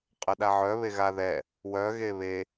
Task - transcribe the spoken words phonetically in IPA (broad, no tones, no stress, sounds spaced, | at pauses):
qʼ ə ɗ a ʕ œ β e ɣ a ð ɛ | w œ ɣ e β e